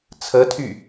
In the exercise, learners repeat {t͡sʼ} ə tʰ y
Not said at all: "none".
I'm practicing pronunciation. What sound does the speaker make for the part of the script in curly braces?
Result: t͡sʰ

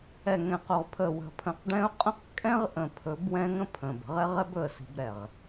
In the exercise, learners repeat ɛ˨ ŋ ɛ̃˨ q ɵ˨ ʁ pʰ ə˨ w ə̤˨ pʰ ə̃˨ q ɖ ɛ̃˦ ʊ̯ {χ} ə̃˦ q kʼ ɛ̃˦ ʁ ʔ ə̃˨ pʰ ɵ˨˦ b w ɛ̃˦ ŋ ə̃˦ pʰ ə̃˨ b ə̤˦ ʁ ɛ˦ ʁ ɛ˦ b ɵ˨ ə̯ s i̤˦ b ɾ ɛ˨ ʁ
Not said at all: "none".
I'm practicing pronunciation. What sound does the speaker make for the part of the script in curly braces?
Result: qʼ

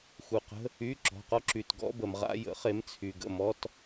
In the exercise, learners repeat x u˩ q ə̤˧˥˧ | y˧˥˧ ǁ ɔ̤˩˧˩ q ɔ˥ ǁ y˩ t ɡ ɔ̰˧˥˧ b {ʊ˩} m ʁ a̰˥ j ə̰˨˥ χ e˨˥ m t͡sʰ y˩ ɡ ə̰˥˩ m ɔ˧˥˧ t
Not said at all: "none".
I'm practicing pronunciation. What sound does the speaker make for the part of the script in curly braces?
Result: ə˩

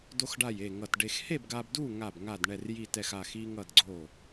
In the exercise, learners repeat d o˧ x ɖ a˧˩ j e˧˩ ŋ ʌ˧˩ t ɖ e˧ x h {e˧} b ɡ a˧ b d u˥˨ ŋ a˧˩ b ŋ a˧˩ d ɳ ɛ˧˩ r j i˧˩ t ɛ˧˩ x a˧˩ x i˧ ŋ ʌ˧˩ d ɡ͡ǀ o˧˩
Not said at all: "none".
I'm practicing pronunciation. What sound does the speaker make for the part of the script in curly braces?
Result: e˥˨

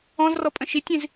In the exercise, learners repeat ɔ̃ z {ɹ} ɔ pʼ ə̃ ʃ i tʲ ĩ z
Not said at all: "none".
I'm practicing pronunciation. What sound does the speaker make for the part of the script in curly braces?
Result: r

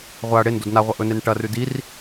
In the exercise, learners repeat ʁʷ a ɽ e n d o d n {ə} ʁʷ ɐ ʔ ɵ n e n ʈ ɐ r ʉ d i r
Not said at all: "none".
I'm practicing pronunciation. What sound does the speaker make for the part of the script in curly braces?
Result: a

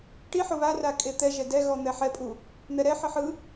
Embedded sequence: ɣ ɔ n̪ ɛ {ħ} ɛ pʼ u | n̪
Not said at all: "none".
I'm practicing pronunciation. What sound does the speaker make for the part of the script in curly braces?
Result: ħ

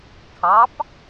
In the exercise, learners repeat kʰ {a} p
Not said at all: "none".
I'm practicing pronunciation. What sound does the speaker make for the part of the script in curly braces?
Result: ɑ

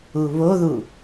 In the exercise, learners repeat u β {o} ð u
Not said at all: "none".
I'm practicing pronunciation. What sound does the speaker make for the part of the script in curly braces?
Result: o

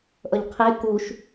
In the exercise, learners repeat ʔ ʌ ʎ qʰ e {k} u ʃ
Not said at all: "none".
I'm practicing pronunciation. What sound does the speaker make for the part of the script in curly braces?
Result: k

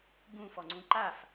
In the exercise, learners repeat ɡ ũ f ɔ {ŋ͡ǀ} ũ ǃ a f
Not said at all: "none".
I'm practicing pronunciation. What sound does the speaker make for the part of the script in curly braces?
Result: ŋ͡ǀ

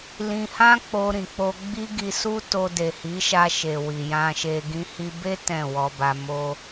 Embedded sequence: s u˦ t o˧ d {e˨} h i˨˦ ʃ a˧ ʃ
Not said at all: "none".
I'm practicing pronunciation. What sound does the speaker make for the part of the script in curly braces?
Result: e˨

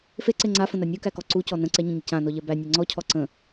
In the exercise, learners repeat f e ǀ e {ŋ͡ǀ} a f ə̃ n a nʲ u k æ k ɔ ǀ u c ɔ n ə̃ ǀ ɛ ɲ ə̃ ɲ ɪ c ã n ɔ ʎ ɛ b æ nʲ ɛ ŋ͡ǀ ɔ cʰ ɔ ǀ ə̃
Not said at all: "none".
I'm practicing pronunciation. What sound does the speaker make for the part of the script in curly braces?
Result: ŋ͡ǀ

